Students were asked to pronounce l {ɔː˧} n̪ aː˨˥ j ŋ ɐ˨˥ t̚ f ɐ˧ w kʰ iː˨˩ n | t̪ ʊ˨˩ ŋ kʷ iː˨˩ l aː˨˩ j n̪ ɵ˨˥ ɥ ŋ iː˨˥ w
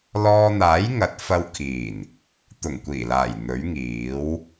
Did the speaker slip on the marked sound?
no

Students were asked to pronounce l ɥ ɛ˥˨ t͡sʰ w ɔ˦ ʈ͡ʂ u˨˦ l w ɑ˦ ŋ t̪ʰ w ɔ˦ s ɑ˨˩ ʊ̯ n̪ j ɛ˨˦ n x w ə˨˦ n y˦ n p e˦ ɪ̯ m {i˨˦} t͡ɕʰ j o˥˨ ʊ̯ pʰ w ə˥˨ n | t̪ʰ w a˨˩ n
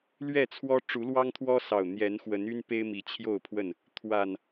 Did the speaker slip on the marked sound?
no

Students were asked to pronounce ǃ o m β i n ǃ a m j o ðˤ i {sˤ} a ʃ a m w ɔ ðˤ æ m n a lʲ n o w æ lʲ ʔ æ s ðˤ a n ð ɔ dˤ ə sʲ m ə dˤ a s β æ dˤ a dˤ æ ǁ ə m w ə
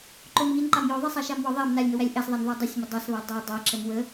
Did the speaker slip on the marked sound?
no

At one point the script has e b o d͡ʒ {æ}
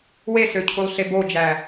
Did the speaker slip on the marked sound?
no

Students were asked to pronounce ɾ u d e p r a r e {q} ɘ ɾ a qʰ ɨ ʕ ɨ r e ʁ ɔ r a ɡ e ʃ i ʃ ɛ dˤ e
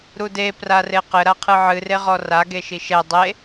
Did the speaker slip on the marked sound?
no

